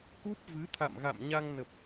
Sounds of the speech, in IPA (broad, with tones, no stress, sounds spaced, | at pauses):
k u˦˥ p̚ v ɨ˨˦ t̪ʰ a̰˧˨ m ɣ a̰˧˨ m ɲ a˧ ŋ n ə˨˩ p̚